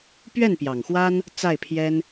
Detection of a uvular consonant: absent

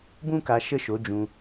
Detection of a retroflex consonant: absent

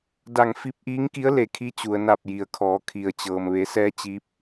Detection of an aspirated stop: present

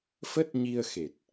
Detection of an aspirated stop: absent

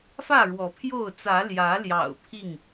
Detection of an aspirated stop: present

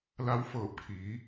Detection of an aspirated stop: present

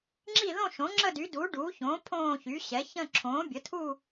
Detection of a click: present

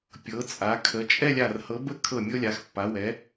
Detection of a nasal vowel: absent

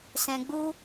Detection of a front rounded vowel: absent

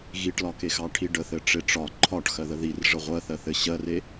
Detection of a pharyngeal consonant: absent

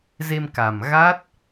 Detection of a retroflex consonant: absent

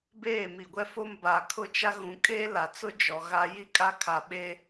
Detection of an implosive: present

